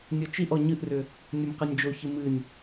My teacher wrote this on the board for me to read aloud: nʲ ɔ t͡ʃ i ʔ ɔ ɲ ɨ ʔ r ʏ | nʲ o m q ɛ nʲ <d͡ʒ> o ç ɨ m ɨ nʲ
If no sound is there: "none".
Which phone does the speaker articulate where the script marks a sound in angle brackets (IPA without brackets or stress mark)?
d͡ʒ